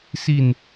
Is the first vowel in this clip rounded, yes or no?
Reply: no